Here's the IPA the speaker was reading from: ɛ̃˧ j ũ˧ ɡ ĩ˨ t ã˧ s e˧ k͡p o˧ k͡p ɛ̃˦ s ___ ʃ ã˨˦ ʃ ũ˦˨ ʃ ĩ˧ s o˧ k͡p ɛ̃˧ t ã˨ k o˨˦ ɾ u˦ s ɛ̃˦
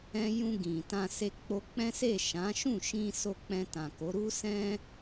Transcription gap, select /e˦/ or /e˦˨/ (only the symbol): e˦˨